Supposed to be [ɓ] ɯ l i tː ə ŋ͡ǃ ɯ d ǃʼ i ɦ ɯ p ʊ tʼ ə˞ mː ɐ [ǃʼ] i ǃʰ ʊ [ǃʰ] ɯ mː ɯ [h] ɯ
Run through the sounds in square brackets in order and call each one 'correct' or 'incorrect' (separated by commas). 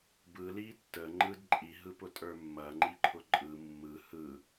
incorrect, incorrect, incorrect, correct